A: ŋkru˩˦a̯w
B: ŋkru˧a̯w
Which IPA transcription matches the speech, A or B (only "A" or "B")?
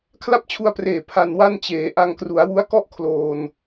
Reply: A